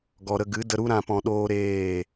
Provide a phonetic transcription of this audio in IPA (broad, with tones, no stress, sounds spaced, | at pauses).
ɡ ɔ˨ ɾ ə˧ ɡ ɨ˨˦ d ə˧ ɾ u˦ ɾ ã˧ p ɔ̃˧ ɗ oː˦ ɾ eː˦˨